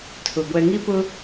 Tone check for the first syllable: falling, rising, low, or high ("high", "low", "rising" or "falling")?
low